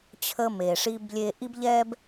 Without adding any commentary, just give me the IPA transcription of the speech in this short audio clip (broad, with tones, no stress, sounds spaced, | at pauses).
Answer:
t͡ɕʰ ə˧ m e˩ ʂ i˧ b lʲ e˧ ʔ i˥ b ʎ ɛ˥ b